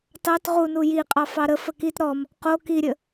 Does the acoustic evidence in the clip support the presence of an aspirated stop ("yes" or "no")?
no